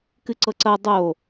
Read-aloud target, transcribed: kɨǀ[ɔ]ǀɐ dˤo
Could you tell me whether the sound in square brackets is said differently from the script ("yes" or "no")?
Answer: yes